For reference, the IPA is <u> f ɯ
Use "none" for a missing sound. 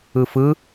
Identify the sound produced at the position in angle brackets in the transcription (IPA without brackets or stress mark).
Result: ɯ